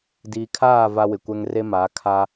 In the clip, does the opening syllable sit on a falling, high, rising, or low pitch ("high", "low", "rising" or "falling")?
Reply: low